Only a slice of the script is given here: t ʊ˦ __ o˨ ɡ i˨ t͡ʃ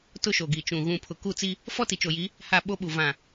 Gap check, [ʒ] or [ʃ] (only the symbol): ʃ